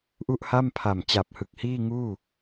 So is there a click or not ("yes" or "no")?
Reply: no